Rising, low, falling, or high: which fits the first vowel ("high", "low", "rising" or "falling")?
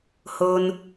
low